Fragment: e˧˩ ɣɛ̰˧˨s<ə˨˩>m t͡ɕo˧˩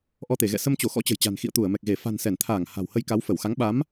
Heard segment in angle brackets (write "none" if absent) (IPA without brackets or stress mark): ə˧